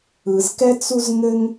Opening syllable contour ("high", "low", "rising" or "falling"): low